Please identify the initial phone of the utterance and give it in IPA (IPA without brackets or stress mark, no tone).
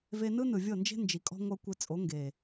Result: v